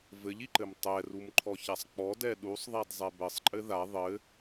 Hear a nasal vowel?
no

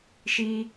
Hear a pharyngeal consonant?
no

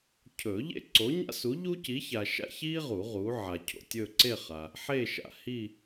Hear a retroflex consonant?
no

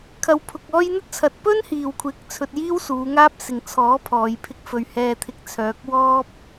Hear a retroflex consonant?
no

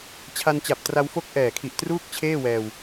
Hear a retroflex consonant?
no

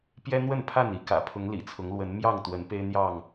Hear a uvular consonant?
no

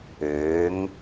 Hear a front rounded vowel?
yes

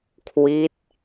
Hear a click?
no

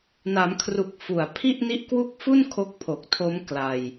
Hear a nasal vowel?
no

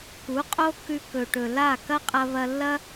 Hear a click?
no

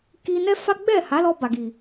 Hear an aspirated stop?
no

